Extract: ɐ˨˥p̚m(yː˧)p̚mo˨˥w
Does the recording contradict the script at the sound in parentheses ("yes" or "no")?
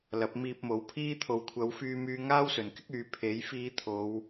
yes